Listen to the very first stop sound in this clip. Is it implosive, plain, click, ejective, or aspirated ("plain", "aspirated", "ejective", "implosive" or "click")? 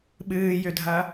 implosive